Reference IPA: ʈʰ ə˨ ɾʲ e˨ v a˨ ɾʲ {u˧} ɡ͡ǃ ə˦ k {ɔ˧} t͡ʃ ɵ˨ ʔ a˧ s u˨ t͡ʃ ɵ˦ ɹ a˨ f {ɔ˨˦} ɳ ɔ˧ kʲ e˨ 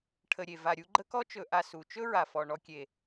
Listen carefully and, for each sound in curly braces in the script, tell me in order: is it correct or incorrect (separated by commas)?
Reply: correct, incorrect, incorrect